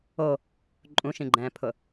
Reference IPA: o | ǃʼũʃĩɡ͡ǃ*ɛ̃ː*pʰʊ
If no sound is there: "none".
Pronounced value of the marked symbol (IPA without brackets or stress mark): ɛ̃ː